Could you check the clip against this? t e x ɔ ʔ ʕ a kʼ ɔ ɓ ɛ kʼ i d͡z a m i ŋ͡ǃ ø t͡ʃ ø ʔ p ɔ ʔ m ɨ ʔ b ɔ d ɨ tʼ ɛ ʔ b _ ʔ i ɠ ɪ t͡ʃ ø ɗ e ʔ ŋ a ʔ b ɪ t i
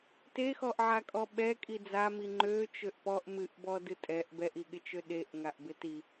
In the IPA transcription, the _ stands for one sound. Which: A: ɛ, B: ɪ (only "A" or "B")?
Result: A